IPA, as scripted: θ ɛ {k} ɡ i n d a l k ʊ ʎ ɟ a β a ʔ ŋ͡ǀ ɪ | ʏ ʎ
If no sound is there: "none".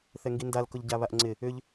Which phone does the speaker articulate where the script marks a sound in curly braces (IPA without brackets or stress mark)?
ŋ